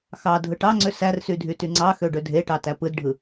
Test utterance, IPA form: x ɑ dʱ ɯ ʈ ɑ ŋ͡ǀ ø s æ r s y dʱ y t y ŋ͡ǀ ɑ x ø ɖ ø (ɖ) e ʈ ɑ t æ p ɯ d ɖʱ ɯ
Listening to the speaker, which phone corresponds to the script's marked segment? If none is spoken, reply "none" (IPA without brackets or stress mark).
dʱ